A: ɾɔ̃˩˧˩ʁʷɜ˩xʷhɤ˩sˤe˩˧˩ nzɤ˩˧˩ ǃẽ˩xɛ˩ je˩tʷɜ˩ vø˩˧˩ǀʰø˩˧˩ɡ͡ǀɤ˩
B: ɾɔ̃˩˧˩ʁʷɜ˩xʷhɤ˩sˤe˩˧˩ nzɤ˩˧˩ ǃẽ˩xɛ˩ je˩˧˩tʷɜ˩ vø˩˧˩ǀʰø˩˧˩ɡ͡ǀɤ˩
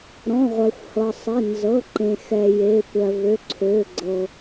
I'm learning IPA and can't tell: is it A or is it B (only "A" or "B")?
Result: B